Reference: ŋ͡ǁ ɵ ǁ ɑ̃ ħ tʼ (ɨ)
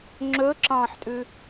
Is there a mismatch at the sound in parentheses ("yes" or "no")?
yes